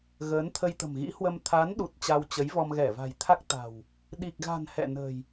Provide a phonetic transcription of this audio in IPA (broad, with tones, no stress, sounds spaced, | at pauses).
ɣ əː˨˦ n t̪ʰ ə˧ j t̪ ə̤˨˩ m ɣ ḭ˧˥ h w ə˧ m t̪ʰ a˨˦ n ɗ u˨˩ t̚ t͡ɕ a˧ w t͡ɕ ə˨˦ j v ɔ˧ m ɣ ɛ˧˩ v a̤˨˩ j t̪ʰ a˦˥ k̚ t̪ a̤˨˩ w | ɗ i˨˩ k̚ ɣ a̤˨˩ n h ɛ̰˧˨ n ə̤˨˩ j